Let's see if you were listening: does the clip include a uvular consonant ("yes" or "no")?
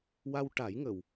no